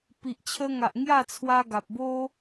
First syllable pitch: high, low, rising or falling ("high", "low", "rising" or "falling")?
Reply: low